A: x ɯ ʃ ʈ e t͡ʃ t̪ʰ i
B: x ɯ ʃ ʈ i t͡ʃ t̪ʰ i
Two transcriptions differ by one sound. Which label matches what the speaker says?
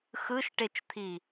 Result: A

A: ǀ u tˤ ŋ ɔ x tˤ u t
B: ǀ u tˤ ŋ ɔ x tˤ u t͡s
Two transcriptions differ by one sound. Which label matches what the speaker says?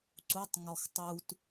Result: A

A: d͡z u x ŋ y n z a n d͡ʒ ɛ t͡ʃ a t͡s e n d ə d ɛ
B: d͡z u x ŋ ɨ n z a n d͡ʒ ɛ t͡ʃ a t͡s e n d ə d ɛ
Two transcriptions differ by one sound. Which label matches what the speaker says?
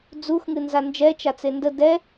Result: B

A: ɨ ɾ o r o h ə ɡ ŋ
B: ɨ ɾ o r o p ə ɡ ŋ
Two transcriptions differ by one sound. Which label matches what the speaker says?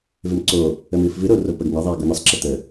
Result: B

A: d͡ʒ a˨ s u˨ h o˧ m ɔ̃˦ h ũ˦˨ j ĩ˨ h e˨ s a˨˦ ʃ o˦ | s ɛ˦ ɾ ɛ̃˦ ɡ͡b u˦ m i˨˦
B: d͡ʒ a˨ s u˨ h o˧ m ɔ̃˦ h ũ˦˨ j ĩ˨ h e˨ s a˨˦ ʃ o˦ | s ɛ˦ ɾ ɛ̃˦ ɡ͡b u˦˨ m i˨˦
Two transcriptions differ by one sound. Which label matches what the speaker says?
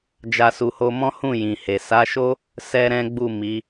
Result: B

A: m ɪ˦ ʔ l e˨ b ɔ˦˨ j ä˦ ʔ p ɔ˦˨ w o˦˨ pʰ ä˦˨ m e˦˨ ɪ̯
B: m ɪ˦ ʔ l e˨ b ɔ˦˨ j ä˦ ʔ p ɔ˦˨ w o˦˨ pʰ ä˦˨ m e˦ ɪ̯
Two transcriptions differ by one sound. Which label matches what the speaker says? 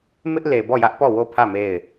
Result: A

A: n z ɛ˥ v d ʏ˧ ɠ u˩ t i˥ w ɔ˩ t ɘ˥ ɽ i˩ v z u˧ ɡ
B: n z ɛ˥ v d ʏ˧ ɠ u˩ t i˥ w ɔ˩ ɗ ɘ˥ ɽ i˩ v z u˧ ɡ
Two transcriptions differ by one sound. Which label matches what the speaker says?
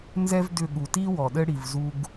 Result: B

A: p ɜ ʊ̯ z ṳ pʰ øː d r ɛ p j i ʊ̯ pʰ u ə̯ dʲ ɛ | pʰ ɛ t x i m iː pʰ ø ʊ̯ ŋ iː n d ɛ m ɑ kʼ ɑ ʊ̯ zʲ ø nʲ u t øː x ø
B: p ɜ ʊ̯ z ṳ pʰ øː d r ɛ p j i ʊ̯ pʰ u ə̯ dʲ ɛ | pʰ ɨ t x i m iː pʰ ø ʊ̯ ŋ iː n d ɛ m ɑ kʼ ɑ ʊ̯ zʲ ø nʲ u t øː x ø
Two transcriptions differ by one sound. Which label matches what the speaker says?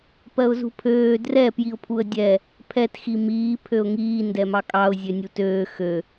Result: A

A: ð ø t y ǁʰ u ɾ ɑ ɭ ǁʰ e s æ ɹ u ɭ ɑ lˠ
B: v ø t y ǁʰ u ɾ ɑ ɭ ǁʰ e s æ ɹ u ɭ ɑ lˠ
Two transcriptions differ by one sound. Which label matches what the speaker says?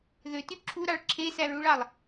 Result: A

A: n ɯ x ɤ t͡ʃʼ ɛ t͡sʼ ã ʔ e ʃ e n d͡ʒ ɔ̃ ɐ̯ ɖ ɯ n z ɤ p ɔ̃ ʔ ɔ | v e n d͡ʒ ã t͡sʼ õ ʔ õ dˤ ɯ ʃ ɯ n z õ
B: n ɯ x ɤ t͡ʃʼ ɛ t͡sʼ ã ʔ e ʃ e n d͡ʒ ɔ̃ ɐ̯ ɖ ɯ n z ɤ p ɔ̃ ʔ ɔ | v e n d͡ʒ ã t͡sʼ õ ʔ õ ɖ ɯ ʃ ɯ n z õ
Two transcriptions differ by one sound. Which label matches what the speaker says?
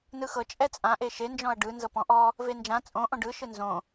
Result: B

